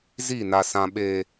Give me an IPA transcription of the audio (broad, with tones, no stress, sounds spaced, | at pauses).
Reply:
z i˦˨ n a˨ s ã˨ ɓ e˨